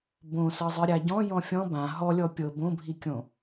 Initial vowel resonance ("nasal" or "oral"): nasal